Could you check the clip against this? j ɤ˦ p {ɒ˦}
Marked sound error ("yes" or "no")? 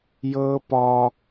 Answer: no